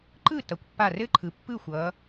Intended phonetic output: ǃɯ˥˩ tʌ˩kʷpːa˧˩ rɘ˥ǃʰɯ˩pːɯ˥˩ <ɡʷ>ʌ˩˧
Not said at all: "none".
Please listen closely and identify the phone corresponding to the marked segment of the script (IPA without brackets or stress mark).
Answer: xʷ